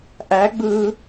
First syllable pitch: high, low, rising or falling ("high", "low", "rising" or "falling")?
rising